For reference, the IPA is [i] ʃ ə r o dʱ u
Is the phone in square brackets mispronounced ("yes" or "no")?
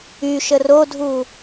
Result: yes